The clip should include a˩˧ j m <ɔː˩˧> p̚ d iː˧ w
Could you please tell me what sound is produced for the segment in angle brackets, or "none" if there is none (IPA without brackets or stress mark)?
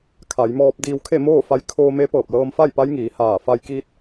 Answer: ɔː˧